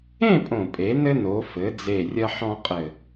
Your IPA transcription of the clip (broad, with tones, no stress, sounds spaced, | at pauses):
ẽ˥˧ pʼ õ˨˩ pʼ e˩˧ n ɘ˧ n o˩˧ f ɘ˩˧ d͡z e˨˩ rʲ ɐ˧ ħ ɔ̃˧ qʼ ɘ˨˩